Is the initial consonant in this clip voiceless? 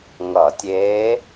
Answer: no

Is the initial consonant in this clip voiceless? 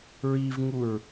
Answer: no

